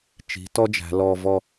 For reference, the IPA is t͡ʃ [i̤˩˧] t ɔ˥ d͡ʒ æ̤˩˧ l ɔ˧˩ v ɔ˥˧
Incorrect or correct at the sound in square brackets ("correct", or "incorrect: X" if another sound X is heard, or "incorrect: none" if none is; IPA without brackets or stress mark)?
correct